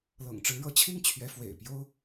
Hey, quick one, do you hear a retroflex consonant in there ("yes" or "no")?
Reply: yes